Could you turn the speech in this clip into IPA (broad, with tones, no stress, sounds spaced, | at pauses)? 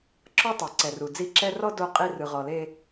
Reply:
ǁ ɔ˦ tˤ e˨ ǀ ɛ˨ r u˨ d͡z i˦˨ ǁ ɛ˦ r ɔ˦ d o˦˨ qʼ i˦ r ɯ˨ ʁ ɔ˨ l e˦